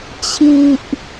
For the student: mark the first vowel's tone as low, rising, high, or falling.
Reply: low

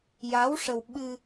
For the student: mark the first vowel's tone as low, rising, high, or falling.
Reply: rising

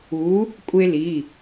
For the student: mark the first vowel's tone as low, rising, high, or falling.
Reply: rising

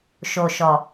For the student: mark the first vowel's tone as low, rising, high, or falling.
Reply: low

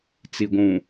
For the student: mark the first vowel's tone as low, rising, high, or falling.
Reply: low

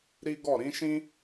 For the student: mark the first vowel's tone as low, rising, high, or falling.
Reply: high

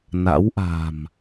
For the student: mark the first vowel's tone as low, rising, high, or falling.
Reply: rising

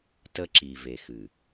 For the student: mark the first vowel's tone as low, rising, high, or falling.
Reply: high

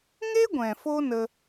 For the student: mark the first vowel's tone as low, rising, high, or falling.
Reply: high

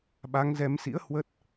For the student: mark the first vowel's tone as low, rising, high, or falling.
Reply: rising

